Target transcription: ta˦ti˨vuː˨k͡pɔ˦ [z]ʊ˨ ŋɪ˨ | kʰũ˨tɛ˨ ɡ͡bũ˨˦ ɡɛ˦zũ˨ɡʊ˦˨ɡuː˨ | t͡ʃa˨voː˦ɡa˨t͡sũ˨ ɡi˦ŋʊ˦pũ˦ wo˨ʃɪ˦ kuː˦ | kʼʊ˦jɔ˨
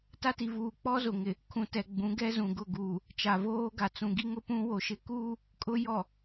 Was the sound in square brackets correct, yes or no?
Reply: yes